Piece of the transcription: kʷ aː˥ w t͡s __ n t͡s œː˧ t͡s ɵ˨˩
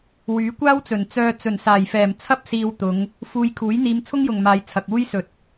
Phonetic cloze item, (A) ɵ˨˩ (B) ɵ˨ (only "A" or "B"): A